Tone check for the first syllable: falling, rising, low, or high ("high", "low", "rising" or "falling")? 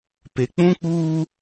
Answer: low